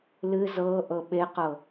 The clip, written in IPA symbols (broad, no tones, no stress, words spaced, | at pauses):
lɨ zɤ ʔɤɓeqɤ